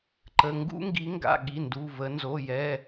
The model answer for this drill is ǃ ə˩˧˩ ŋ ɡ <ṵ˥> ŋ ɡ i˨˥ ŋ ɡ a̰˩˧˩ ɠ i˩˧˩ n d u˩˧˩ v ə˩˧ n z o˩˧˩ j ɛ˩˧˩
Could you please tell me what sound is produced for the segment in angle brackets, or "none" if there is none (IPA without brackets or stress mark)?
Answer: ṵ˥